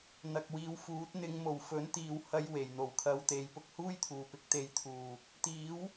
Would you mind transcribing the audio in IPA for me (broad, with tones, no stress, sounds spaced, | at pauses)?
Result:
n̪ ɐ˨ k̚ w iː˨˧ w f uː˨˥ t̚ n̪ ɪ˨˧ ŋ m o˨˩ w f ɵ˨˥ n t̪ iː˨ w h ɐ˧ j w e˨˩ j n̪ o˨ w kʰ ɐ˧ w t̪ e˨˥ j p ʊ˨ k̚ h uː˥ j t̪ʰ uː˨˩ p ɪ˨˥ k̚ t̪ e˨ j t̪ʰ uː˨˩ | t̪ iː˨˥ w